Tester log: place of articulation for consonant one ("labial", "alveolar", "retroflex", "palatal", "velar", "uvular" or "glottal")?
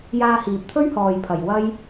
palatal